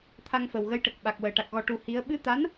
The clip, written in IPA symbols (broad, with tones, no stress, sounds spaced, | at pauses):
t̪ʰ a˧ ŋ f ə˨˩ w ɣ ə˧˥ j ʈ ə˨˩ k̚ ɓ a˨˩ k̚ w əː˨˩ ʈ a˨˩ k̚ ɣ ɔ˨˩ ʈ u˨˩˦ h i˧˥ ə̯ ɓ ɨ˧˥ t̪ a˧˥ n